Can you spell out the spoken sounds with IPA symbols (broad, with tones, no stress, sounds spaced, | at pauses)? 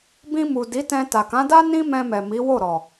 b ĩ˧ m u˨ d i˨˦ t ɛ̃˧ t a˨ k ã˨˦ d a˦ n ĩ˦ m ɛ̃˧ m ɛ˨ m i˨˦ w o˦˨ ɾ ɔ˨